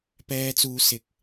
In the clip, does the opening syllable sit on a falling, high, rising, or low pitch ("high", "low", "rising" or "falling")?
high